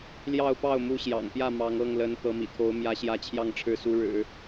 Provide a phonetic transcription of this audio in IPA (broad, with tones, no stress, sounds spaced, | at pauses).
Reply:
l j ɑ˥˧ ʊ̯ p ɑ˥˩ ʊ̯ m u˧˥ ɕ j ɑ̰˨˩ ŋ p j ä˥˩ m ɑ˧˥ ŋ ɤ˥˩ ŋ l ə˧˥ n t̪ ɤ˧˥ m ḭ˨˩ t̪ʰ o˧˥ ʊ̯ m j ä˧˥ ɕ j ä˥ t͡ɕʰ j ɑ˥˧ ŋ ʈ͡ʂʰ ɻ̩˥˩ s u˧˥ ɻ ɻ̩˨˩˦